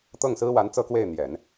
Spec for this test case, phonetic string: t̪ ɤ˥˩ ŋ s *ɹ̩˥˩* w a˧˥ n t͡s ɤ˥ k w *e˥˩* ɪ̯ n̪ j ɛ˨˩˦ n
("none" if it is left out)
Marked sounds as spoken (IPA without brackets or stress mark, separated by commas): ɹ̩˥, e˥˩